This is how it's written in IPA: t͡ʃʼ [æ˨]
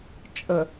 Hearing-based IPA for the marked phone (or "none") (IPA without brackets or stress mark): ə˨